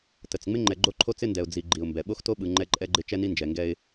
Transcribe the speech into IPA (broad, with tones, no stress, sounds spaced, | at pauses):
t ə˨ t͡s ŋ͡m ɪ˦ ŋ͡ǃ ɛ˨ ɡ͡ǃ o˦ ǃʰ o˦ t͡s ɪ˦ n d ɛ˨ ʊ̯ d͡z i˨ ɡ͡ǃ i˨ ʊ̯ m b ɛ˨ ɓ o˦ x t o˦ ɓ ɯ˨ ŋ͡ǃ ɛ˦ ǃʼ ɛ˦ ɡ͡ǃ ɪ˦ t͡ʃ ɛ˦ n i˦ n d͡ʒ ɛ˨ ŋ ɡ ɛ˦ ɪ̯